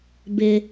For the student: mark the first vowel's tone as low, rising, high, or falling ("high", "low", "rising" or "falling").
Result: high